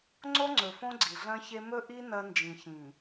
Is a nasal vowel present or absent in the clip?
present